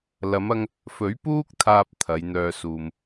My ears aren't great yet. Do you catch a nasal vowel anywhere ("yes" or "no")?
no